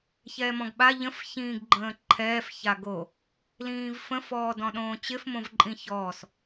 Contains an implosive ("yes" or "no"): yes